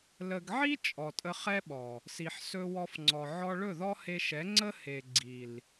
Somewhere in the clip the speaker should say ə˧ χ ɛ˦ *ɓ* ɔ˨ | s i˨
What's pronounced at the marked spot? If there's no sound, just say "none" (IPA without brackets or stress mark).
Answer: ɓ